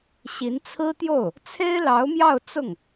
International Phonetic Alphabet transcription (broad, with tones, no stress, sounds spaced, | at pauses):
ɕ i˧˥ n t͡sʰ ɹ̩˥ t̪ j o˥˩ ʊ̯ | t͡sʰ e˥ ɪ̯ l ɑ˧˥ ʊ̯ m j ɑ˥˧ ʊ̯ t͡s ʊ˥˩ ŋ